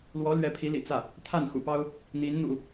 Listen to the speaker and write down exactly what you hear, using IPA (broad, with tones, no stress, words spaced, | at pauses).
lwɔ˧˥ lɥɛ˧˥pʰi˧˥lḭ˨˩ t͡sä˥˩ | t̪ʰa˥˩nxṵ˨˩pɑ˥ʊ̯ | n̪i˧˥n n̪ṵ˨˩˦